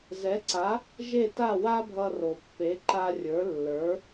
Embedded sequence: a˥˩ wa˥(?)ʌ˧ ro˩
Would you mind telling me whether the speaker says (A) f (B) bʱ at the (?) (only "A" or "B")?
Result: B